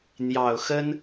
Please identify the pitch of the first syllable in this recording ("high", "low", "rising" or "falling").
low